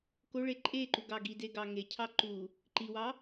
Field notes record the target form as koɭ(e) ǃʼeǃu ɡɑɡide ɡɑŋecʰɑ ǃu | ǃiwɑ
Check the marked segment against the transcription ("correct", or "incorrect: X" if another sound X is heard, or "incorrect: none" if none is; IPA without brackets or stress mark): correct